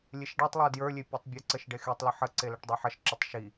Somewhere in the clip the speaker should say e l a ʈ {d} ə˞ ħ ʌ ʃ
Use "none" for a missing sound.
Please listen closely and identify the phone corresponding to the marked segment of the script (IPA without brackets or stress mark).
dˤ